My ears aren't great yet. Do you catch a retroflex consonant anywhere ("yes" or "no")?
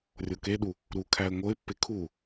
no